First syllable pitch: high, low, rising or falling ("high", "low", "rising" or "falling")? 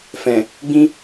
low